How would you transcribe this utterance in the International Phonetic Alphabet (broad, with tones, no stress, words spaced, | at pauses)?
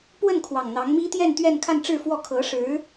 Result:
pwə˥˩n kʰwɑ˨˩ŋn̪ɑ˧˥ŋ mi˥t̪jɛ˥˧n t̪ɥɛ˥˧nkʰa˥˧nʈ͡ʂɻ̩˥˩fwɔ˥ kʰɤ˧˥ʂɻ̩˧˥